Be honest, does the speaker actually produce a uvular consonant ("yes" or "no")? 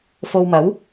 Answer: no